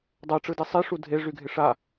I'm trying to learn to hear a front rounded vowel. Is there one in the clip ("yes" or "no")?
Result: yes